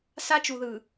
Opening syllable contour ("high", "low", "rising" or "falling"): high